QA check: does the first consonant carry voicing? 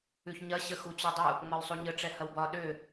no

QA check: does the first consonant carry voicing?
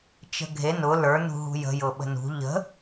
no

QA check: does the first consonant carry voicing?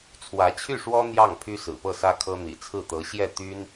no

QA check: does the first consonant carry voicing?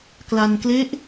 no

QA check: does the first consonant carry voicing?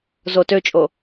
yes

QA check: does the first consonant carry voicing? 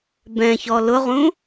yes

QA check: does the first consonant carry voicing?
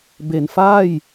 yes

